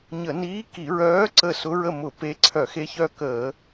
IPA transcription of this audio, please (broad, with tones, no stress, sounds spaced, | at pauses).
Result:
ɲ ə˧˩˧ n iː˧˥ k i˧˩˧ ɹ œː˧˥ ǀ ə˦˨ s ʊ˧˥ ɹ ə˦˨ m ʊ˧˩˧ p e˧˥ ǀʰ œ˧˩˧ x e˧˥ ç œ˦˨ k əː˧˩˧